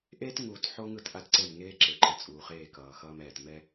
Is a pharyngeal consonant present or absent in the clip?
present